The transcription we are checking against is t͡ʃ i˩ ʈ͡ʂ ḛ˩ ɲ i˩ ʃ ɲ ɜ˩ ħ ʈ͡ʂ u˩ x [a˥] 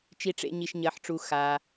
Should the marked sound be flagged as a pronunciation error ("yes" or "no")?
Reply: yes